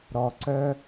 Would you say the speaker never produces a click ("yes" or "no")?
no